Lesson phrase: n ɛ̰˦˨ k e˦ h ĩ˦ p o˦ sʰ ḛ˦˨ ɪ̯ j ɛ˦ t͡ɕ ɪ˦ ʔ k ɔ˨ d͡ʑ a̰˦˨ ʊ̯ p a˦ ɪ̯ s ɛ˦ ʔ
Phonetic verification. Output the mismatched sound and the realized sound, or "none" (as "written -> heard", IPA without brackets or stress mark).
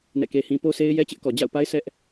ḛ˦˨ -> e˦